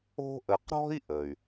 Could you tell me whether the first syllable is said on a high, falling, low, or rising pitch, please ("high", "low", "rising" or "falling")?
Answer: high